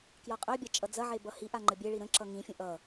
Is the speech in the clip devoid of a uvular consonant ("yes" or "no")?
no